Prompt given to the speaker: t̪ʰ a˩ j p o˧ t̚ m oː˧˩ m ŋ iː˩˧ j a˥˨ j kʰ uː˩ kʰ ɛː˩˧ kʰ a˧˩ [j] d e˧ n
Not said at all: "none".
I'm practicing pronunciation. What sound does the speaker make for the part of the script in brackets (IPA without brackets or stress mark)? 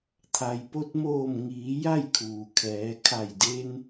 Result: j